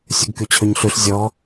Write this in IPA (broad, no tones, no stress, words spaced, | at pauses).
sʲuɡkyt͡ɕʰøɲɬʉɬ zʲɔ